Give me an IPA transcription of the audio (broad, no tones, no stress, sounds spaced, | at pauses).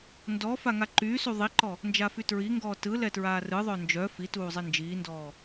n d ɔ f a ŋ a ǃ yː s u ðˤ i ǃ ɔ | n d͡ʒ a f y t ɹ i ŋ ɡ ɔː t ɯ l ɛ t ɹ aː r ɯ ðˤ œ n d͡ʒ œ f i t uː zˤ e n d͡ʒ iː n d ɔː